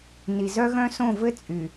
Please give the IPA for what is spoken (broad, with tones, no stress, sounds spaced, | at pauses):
n i˨ z œ˦ ɣ œ̃˦ s õ˦˨ v ɘ˦ t͡sʼ y˨